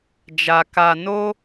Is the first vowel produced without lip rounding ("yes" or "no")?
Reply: yes